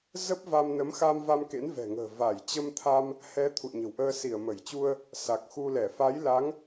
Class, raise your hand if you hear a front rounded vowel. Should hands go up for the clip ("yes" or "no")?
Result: no